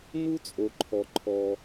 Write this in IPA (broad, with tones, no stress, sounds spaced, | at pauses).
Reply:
n u˥ t͡sʼ o˩ ǃʰ ɔ˩ ǃʰ ɔ˩